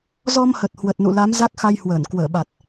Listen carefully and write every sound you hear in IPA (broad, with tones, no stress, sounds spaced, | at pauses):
z ɔ˧ m h ə˨˩ t̚ h w ə˨˩ t̚ n ṵ˧˨ l a˨˦ m z a˦˥ k̚ x a˧ j h w əː˧˩ n k w əː˧˩ ɓ a˨˩ t̚